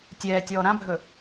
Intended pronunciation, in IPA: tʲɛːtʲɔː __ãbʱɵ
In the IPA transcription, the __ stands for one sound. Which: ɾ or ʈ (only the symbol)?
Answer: ɾ